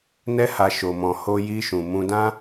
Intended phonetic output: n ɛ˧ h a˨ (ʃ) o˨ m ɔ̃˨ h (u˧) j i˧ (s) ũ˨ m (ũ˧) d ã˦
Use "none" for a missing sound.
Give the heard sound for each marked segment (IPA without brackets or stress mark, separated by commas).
ʃ, o˧, ʃ, ũ˧